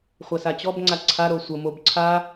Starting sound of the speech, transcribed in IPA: χʷ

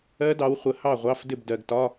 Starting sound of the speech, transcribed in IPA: ɜ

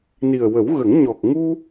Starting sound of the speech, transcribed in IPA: n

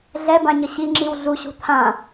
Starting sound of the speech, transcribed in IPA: ɮ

